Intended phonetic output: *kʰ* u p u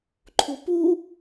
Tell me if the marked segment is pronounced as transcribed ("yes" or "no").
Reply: no